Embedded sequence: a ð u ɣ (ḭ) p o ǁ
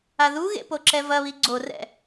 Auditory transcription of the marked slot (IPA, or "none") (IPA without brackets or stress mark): ḛ